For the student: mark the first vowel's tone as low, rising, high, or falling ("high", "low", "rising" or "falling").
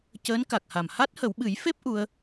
rising